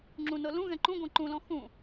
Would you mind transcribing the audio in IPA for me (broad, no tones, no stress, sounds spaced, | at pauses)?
ŋ͡ǁ ũ n ɤ l ũ ɣ ɛ̃ ǃ ũ ɡʷ ɛ̃ ǃ ũ l ɔ̃ x ũ